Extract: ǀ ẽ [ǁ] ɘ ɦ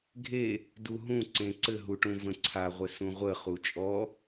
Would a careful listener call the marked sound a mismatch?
yes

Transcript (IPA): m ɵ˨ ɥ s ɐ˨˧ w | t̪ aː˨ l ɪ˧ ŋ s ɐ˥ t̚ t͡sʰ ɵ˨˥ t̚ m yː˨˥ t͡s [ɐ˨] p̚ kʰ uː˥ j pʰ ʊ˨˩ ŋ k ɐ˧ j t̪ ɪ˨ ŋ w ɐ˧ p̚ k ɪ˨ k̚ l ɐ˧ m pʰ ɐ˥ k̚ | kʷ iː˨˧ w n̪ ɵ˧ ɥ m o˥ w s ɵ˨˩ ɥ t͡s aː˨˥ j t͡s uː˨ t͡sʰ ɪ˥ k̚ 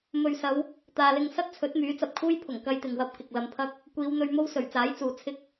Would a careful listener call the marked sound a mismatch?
no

